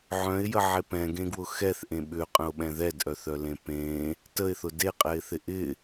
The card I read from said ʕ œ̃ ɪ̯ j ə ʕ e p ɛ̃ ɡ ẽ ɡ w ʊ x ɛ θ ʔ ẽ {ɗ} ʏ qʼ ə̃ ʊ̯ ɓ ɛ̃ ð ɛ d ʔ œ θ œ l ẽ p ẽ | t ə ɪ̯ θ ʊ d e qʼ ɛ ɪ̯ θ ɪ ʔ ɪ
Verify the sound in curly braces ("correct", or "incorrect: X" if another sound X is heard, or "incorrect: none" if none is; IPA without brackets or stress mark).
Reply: incorrect: ɓ